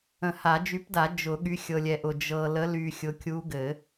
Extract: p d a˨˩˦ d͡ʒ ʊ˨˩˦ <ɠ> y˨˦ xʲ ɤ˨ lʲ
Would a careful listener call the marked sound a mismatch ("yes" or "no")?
no